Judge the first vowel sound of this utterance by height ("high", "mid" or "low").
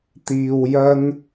high